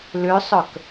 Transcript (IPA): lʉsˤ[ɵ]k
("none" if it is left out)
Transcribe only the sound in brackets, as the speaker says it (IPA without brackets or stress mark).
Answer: ɵ